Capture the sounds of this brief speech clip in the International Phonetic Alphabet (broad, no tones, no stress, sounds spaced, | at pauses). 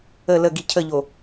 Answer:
ə l ə ɡ i cʰ ə ʎ o